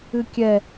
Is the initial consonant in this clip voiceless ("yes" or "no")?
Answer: yes